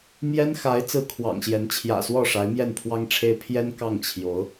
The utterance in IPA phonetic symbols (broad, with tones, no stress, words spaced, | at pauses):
mjɛ˥nxa˧˥ɪ̯ t͡sɹ̩˥˩kʰwɑ̰˨˩ŋɕjɛ˧˥n t͡ɕʰjä̰˨˩swɔ˥˩ʂa˧˥ɪ̯ mjɛ˥˩npʰwɑ˥ŋʈ͡ʂʰe˥ɪ̯ pʰjɛ˥n kɑ˥˩ŋt͡ɕʰjo˧˥ʊ̯